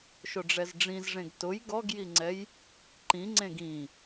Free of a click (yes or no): no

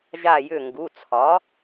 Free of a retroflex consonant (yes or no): yes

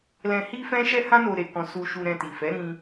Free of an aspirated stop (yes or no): yes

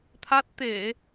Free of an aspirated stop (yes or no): no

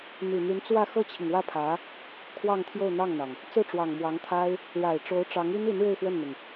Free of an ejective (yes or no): yes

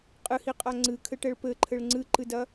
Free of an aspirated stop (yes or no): no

